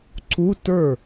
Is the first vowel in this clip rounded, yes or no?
yes